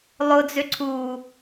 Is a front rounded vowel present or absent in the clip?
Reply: present